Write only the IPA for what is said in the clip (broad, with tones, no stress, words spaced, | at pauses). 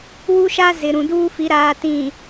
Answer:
wu˦ʃaː˦ zɪ˨ɾũ˨duː˦fi˨˦ ɾaː˨tĩ˨